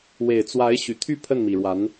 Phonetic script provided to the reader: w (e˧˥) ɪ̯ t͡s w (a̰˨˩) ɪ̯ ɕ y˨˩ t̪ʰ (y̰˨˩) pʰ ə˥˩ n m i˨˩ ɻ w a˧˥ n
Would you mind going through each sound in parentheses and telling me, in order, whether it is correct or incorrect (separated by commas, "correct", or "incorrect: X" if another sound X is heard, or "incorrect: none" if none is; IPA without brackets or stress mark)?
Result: incorrect: e˨˩, incorrect: a˧˥, incorrect: y˥˧